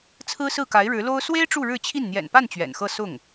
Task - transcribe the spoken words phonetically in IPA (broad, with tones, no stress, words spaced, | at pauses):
t͡sʰɹ̩˥ sɹ̩˥˩ka˧˥ɪ̯ɻɻ̩˧˥lo˥ʊ̯ swe˥ɪ̯ ʈ͡ʂu˥˧ɻɻ̩˥˧t͡ɕʰi˥˩n n̪jɛ̰˨˩npa˥˩n t͡ɕɥɛ̰˨˩nxɤ˥˧ sʊ˥˩ŋ